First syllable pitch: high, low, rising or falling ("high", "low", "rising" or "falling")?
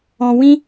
low